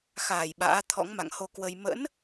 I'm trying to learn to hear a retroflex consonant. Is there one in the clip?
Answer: no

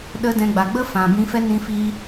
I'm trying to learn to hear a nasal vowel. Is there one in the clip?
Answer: yes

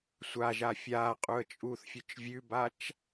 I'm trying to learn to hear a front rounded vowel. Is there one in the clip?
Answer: no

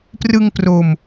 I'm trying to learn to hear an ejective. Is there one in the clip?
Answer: no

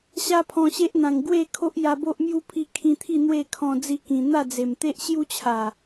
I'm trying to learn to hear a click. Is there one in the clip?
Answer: no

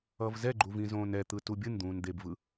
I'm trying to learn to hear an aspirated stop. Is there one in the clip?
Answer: no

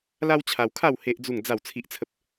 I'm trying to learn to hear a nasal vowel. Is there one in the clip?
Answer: no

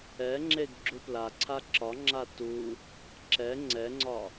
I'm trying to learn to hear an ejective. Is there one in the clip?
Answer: no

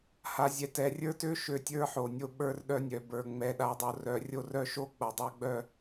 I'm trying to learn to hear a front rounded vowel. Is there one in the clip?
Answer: yes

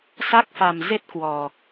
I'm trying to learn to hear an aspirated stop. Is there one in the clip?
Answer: no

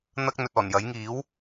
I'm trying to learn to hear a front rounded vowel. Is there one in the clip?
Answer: no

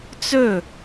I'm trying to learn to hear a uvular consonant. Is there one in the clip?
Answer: no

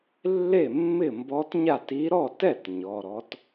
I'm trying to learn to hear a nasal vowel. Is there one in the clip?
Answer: no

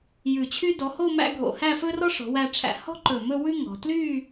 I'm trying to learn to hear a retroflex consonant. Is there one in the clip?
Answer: yes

